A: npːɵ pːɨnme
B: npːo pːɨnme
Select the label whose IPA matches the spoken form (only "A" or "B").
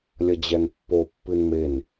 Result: B